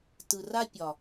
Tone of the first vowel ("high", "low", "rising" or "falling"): low